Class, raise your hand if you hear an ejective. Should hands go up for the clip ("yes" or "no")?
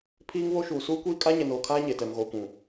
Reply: yes